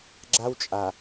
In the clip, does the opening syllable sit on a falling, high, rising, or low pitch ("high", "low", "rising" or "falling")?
high